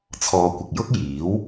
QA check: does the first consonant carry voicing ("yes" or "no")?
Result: no